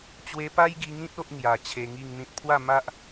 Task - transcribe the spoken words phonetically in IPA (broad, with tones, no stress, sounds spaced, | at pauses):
t͡ɕ w e˧ p a˦ j ɡ i˧ ŋ ĩ˦ t̚ o˦ ʔ ŋ j a˨˩ t͡ɕʰ e˧ ŋ i˥˧ ŋ n̪ ĩ˦ t̚ pʰ w a˥˧ m a˦ ʔ